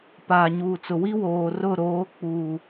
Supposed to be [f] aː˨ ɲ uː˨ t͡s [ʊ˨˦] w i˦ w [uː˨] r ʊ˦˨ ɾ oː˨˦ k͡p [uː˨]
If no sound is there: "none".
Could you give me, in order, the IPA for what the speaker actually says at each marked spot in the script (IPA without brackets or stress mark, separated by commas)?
p, ʊ˨, oː˨, uː˨